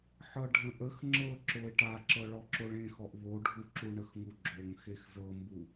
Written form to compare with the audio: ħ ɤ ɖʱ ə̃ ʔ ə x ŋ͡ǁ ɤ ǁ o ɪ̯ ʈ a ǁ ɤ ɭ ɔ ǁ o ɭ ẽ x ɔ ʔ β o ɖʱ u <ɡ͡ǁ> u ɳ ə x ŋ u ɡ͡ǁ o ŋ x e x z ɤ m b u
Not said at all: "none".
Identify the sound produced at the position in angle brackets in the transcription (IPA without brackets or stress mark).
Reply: ǁ